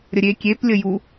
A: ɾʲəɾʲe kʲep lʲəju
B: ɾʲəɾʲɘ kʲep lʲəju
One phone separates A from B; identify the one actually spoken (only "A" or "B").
A